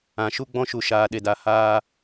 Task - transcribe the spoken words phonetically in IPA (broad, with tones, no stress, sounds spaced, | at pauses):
ã˨ ʃ u˦ ɡ͡b ɔ̃˦ ʃ u˨ ʃ aː˨ ɗ e˨ d a˨ h aː˧